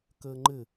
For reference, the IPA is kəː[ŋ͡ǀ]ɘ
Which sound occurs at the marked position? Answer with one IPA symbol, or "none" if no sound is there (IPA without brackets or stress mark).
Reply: ŋ͡ǃ